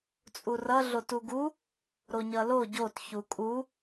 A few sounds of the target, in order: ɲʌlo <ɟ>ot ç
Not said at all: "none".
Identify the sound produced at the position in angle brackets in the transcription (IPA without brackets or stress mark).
ɟ